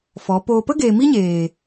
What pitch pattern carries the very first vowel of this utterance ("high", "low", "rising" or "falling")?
rising